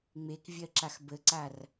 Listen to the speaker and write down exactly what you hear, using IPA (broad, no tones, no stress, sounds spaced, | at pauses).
ŋ͡m e k vʲ ɜ ǁ a x b ə ǀ a r